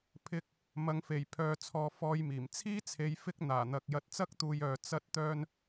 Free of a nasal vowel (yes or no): yes